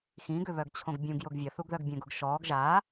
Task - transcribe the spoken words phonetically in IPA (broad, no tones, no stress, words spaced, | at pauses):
xĩɡʏβœɡt͡ɕʰõɡ bʲũɡjʊɡ vʲəθuɡðœɡ bʲœ̃ɡʊɡ ʃɔːɡ ʒa